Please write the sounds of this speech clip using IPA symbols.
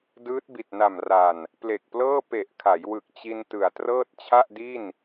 d ɯː˦˥ t̚ b i˨˩ t̚ n a˨˩ m r a˨˩ n | p l e˨˩ k̚ p l ɤː˥˩ p e˨˩ ʔ kʰ a˩˦ j w ɯ˨˩ k̚ t͡ɕ i˧ n t ɯ˩˦ a̯ t r ɤː˥˩ t̚ t͡ɕʰ a˥˩ ʔ d i˥˩ n

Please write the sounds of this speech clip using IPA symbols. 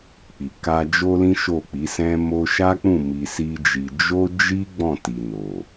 k͡p i˨ k a˧ d͡ʒ o˦ l ĩ˦ ʃ o˦˨ k͡p i˨˦ s ɛ̃˦ m o˧ ʃ a˦ k͡p ũ˦˨ m i˧ s i˦ d͡ʒ i˧ d͡ʒ o˦ d͡ʒ i˦ ɡ͡b ɔ̃˦˨ t i˨ n o˨

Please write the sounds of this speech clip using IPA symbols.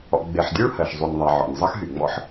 ɔ̰˨ ɡ͡b e˨ ħ dʲ u˥ ɭ h ɜ˩ ʃ zˤ y˨ nʲ ðˤ a˨ ʕ ɔ̰˩ nʲ zˤ ʌ˦ x ɦ y˩ ŋ͡m ɔ̰˥ ħ

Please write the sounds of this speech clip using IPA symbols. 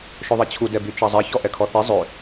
ʃ ɵ ðˤ i t͡ɕʰ u d ɛ b y t͡ʃ ɑ zˤ ɛ ç ɔ ʔ ɛ kʰ ɔ θ i zˤ ø

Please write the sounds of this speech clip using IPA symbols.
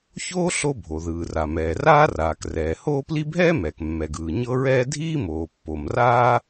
ç oː˥ ɬ o˥ bʱ o˩ ð ɯː˩ r a˩ m ɛː˩ r aː˥ r aː˩ k r ɛː˩ h oː˥ p l i˥ bʱ ɛː˥ m ɛː˩ k mː ɛ˩ ɡ ɯː˩ ɲ ɤ˥ ɹ ɛː˥ dʱ iː˥ m oː˩ pː o˩ m r aː˥

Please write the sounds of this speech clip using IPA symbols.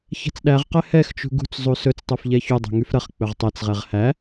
ç ɛ̤ t͡s ɗ æ ʁ q ɛ h ɛ x t͡ʃ ṳ ɡ ṳ t͡s zˤ u s ɵ t͡s tˤ u f ʎ ɛ ç u dˤ ɛ̤ ŋ y f ɾ ɐ χ k͡p ɵ ʁ tˤ ɛ t͡s ʁ ɛ ʁ h æ

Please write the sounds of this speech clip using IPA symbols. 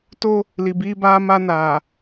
t o˦ | l i˨ b iː˦ b aː˦ m a˦ n aː˨

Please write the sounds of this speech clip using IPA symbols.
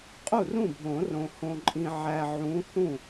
qʼ u˥˩ r ũ˥˩ bʱ õ˨˩˦ r õ˨ h õ˨ ǃʼ ĩ˨ ʕ æ˨ ʕ ũ˨˦ θ ũ˥˩

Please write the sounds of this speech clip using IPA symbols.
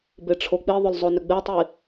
b e ʈ͡ʂʰ o k͡p i ðˤ ʏ l zˤ o n ʏ ɡ͡b e tˤ i

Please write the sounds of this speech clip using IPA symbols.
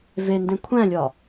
v e n d ẽ kʷʰ æ̃ lʲ ɒ

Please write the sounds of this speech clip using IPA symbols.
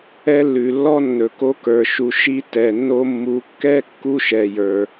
ɛ˦ lː ʉ˨ lː ɔ˦ nː ɵ˨ k o˦ k ə˞˨ ʃ u˨ ʃ i˧ t ɛ˨ nː o˧ mː u˨˦ kː ɛ˦ kː u˦ ʃ ɛ˨ j ə˞˨

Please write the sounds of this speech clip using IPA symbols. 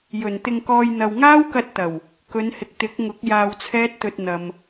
j ɵ˨˩ n t̪ ɪ˧ ŋ k ɔː˧ j n̪ ɐ˨ w ŋ aː˥ w k ɐ˧ t̚ t̪ ɐ˨˩ w | k ɵ˨˧ n h ɪ˨ k̚ t̪ ɪ˨˥ k̚ ŋ ʊ˨˥ k̚ j aː˧ w t͡sʰ ɛː˥ t̚ t̪ ɵ˧ t̚ n̪ ɐ˨ m

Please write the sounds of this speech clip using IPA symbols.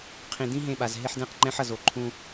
qʰ ĩ˨ d ĩ˦ ɦ ẽ˦˨ ɓ a˨ z ɦ e˦ ħ d ɛ̃˦ q ŋ͡ǃ ɛ̃˦ ħ ʌ˨ z o˨ ǃʰ ũ˦

